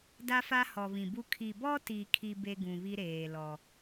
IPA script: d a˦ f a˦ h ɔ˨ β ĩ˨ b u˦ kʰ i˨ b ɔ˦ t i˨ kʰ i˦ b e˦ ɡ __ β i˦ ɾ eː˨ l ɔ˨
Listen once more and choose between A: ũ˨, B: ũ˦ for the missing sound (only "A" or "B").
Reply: A